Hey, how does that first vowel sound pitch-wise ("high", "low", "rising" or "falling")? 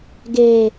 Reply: low